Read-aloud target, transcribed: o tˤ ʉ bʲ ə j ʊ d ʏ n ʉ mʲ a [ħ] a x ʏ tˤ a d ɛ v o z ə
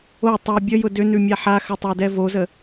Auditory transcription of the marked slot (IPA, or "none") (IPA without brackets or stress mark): ħ